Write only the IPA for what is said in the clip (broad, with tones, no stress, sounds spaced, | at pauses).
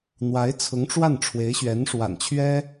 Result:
n̪ w a˧˥ ɪ̯ t͡sʰ ʊ˧˥ ŋ ʈ͡ʂ w a˥˩ n ʈ͡ʂʰ w e˧˥ ɪ̯ ɕ ɥ ɛ˧˥ n ʂ w a̰˨˩ n t͡ɕʰ ɥ ɛ˥